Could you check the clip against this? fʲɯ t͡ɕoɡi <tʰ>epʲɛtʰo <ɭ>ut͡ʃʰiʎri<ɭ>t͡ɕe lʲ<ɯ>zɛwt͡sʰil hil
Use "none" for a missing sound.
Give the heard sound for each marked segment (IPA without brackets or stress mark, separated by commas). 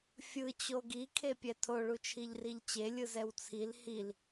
kʰ, ɭ, ʎ, ɯ